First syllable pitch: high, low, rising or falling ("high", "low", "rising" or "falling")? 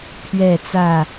falling